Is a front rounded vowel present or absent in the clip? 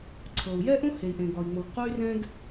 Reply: present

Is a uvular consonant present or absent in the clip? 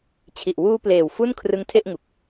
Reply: absent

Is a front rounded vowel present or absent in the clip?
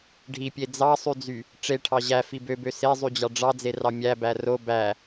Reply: present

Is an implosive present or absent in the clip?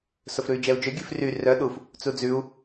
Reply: present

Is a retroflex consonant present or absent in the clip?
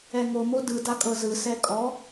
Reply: absent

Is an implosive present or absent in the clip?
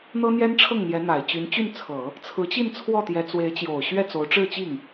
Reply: absent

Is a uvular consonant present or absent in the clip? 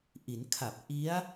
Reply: absent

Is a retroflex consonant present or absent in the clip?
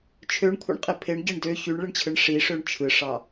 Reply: present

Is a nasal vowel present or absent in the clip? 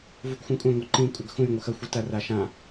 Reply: present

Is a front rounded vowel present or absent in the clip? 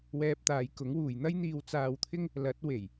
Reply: absent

